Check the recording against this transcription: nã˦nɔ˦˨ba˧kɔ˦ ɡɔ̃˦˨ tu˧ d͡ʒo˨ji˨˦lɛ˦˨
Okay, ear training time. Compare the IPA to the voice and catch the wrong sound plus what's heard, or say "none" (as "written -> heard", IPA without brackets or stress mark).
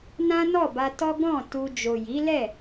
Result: k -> t